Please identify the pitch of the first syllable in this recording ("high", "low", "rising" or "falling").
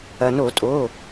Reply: low